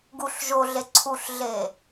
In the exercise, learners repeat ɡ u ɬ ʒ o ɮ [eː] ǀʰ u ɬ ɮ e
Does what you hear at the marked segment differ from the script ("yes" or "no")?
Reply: yes